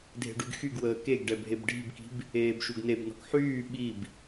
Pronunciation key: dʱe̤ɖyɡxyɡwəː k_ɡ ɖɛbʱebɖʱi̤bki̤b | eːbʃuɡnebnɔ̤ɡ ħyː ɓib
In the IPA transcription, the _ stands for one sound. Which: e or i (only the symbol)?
e